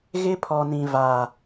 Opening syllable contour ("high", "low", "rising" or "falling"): high